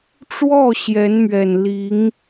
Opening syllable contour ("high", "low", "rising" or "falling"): falling